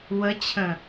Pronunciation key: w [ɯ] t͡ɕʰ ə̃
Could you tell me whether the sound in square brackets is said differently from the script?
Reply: yes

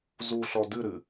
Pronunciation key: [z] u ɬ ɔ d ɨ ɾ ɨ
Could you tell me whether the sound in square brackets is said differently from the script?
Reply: no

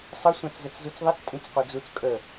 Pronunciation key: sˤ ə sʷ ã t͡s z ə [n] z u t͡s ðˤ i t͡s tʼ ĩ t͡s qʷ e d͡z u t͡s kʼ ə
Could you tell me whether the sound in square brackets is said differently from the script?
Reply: yes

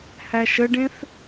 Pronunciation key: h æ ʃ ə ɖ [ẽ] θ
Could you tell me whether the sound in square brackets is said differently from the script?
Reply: no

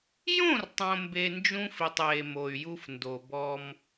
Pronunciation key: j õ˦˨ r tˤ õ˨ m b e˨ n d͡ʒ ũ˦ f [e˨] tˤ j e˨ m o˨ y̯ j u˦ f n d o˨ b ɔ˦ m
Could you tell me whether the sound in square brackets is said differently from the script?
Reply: yes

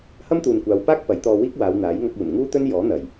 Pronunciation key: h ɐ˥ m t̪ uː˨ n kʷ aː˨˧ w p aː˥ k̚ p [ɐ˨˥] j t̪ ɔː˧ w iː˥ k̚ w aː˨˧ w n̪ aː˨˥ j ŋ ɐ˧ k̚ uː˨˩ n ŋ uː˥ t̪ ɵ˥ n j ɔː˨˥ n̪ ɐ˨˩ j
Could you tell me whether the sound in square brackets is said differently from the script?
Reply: no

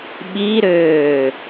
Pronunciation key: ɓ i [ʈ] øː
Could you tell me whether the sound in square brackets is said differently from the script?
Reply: yes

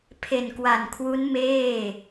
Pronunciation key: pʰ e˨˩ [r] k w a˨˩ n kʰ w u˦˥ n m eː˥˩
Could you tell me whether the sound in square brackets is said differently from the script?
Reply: yes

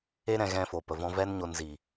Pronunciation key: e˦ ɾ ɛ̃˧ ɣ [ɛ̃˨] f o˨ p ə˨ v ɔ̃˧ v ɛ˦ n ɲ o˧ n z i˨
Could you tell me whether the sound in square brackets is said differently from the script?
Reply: yes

